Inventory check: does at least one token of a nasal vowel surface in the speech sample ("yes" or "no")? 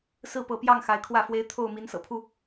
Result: no